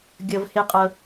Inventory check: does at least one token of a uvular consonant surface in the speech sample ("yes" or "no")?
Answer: yes